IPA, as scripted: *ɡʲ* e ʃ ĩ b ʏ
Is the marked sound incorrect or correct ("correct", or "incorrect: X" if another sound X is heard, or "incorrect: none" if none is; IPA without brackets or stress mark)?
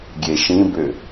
correct